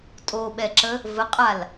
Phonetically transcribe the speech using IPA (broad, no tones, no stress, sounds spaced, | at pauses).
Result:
tʼ o ɓ ɛ ǁ ə | v ə qʼ a l